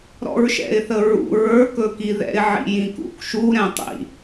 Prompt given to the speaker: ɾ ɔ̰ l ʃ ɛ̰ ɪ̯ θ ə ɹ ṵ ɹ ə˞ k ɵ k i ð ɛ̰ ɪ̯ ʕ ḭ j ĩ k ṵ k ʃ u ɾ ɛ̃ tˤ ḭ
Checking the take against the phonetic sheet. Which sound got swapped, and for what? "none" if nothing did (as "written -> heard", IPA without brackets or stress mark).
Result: l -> ɹ